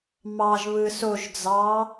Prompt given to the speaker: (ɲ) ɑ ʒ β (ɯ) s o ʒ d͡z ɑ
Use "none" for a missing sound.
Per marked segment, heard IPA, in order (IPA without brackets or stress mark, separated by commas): m, ɯ